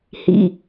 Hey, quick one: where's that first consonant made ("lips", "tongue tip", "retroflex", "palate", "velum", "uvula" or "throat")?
throat